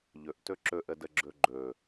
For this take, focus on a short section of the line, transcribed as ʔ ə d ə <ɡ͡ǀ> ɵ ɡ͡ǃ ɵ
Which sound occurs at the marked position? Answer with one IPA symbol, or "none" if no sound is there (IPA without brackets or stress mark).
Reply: ɡ͡ǁ